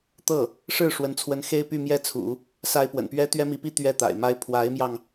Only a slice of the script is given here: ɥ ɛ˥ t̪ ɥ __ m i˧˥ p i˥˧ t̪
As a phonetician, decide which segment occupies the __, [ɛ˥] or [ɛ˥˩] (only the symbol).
ɛ˥